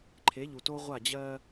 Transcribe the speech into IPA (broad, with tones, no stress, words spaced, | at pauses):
ǃʰe˨˦ʎu˨to˦ ʁʷa˦˨d͡ʑɜ˦